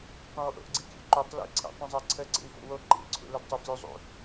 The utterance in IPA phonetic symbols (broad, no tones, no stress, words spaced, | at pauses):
tˤĩwʔo̰ʔɡ͡ǀikʲṵ ǃytˤ lḭǀʰḭtˤĩzˤɛ ǀʰəǀḭwfo̰ wo ǃḭlǀʰṵləd tˤuflʲuzˤṵ